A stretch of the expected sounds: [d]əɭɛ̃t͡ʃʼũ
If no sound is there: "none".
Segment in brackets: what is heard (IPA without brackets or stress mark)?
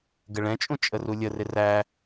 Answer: ɡ